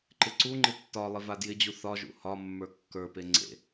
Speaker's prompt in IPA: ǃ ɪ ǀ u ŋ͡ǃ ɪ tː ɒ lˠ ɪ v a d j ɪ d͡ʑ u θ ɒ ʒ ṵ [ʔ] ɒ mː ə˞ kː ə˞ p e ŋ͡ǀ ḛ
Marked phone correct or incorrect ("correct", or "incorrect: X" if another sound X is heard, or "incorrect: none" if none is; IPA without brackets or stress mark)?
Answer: incorrect: h